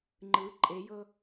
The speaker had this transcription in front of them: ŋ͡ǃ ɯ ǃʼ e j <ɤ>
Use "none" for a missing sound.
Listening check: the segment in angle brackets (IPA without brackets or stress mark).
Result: ɤ